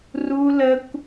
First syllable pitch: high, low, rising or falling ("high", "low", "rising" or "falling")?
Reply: high